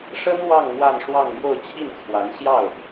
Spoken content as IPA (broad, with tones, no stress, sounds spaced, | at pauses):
ʂ ə˥ n w ɑ˥˧ ŋ m w a˥˧ n ʂ w ɑ˥˧ ŋ m j o˥˧ ʊ̯ t͡ɕʰ i˥˩ n t͡sʰ w a˧˥ n ɕ j ɑ˥˩ ʊ̯